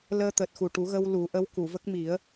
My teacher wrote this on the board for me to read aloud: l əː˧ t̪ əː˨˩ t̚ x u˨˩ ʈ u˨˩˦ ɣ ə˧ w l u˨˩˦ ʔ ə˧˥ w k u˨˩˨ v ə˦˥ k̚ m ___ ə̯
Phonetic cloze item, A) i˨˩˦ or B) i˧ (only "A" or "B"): A